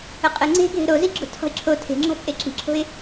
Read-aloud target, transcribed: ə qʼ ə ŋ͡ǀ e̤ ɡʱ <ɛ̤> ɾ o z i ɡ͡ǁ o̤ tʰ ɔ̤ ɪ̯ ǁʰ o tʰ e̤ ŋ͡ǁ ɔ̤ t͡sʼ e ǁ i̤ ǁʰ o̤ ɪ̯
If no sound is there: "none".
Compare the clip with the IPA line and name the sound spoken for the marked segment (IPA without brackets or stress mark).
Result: e̤